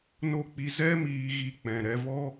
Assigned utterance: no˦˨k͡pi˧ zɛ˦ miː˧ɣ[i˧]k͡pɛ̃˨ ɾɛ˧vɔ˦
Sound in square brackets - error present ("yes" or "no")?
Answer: no